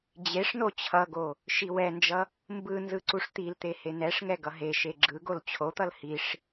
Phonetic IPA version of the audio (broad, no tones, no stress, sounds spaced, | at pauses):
d͡ʑ e ʂ n o t͡ɕʰ ʌ ɡ o | ʃ i w ɛ n d͡ʒ ʌ | m b ɯ n z ɯ ǀ u ʂ t̪ i l t̪ e h e n ɛ ʂ ŋ ɛ ɡ ʌ ɦ e ʃ e ɡ͡ǁ ɯ ɡ o l t͡ɕʰ o t̪ ʌ l h i ʂ